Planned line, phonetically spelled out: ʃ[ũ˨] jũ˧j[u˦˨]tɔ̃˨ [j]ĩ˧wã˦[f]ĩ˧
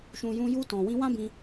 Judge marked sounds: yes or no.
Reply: yes, no, no, no

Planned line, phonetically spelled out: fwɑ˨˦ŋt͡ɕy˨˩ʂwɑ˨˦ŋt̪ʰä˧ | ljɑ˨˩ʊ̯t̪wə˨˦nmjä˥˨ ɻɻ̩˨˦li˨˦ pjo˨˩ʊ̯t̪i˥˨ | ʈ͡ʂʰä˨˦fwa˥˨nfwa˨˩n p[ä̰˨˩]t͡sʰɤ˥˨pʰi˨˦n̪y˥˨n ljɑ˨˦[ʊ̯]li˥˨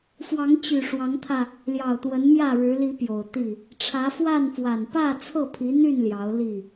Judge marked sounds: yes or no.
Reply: no, yes

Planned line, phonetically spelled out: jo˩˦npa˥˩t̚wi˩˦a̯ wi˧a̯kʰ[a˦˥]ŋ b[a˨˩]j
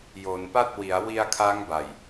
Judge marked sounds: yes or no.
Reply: yes, yes

